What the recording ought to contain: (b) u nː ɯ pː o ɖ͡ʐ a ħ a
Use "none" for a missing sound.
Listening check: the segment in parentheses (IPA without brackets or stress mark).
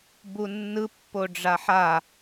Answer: b